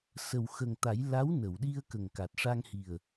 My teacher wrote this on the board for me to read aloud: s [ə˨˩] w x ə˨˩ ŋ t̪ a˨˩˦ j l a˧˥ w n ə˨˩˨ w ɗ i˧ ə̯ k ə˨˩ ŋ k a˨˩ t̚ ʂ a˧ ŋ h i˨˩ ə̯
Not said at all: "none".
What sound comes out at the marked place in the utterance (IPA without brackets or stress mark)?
ə˨˩